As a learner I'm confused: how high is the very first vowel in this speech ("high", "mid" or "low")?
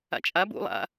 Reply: low